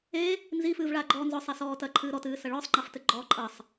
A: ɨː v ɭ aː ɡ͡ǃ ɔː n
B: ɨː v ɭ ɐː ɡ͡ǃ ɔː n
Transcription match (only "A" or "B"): A